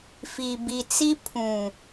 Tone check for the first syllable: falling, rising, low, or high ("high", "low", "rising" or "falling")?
low